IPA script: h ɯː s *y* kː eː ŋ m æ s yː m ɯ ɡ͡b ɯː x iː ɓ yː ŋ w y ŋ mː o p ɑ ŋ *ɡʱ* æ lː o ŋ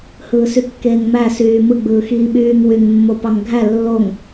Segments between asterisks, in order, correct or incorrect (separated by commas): correct, correct